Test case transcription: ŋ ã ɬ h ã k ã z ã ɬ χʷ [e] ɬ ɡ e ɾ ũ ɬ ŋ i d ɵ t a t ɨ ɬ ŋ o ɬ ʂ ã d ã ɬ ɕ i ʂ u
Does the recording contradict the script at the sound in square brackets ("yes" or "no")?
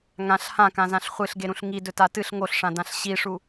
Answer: yes